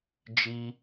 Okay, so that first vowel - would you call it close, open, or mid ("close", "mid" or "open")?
close